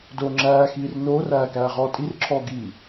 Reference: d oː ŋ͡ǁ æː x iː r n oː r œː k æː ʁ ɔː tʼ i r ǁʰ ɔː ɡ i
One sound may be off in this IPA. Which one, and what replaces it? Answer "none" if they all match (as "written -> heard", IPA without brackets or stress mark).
œː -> æː